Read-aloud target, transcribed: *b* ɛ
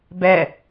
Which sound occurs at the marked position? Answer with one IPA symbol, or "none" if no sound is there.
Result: b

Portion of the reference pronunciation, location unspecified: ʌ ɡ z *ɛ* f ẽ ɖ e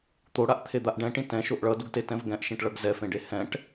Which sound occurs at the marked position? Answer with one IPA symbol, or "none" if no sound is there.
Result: ɛ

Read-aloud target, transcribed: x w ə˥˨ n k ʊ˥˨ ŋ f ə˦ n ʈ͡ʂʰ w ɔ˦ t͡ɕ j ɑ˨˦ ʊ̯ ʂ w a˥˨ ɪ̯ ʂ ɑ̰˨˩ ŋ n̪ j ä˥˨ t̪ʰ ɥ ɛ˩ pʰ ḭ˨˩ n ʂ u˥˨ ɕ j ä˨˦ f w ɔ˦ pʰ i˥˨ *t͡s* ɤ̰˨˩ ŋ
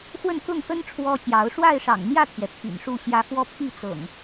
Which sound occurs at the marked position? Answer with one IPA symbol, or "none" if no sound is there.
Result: t͡s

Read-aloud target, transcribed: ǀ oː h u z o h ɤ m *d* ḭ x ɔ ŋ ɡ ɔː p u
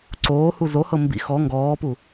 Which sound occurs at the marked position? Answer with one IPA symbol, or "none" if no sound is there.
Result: b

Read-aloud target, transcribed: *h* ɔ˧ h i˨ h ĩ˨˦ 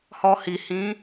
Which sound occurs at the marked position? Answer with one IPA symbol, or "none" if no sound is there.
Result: h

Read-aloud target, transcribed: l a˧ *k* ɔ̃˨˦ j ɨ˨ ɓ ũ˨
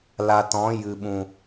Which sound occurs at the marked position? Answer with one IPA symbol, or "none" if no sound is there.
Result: t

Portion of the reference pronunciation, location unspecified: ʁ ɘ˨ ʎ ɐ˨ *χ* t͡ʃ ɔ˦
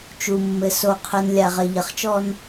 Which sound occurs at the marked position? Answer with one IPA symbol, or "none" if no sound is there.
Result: χ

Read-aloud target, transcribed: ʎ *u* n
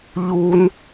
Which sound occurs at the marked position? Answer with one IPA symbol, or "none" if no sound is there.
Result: u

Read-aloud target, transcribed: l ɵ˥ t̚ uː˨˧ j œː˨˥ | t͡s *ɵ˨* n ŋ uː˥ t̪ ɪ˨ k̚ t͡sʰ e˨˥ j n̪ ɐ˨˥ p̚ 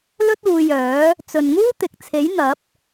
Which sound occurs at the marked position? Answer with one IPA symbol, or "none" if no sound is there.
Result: ɵ˨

